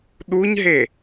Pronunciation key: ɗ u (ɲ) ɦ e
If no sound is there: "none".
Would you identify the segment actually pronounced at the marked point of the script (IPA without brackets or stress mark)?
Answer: ɲ